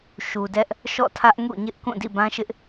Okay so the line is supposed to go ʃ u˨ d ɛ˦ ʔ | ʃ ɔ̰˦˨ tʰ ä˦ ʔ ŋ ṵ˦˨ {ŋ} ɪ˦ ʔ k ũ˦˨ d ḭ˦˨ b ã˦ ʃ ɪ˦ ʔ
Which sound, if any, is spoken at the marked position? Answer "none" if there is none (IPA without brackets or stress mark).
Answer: ɲ